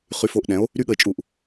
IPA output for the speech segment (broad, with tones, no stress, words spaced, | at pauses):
χy˧fo˧ʔɗɛ̃˩˥o̯ | ɾy˥ɠə˧e̯t͡ʃʼu˧˩ʔ